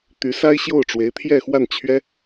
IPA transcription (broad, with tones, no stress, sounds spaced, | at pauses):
t̪ y˧˥ s a˥ ɪ̯ ɕ j o˥˩ ʊ̯ ʈ͡ʂ w e˧˥ ɪ̯ t̪ʰ j ɛ˥˧ x w a˥˩ n t͡ɕʰ ɥ ɛ˥